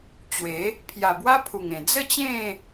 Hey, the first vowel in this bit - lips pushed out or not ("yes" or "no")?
no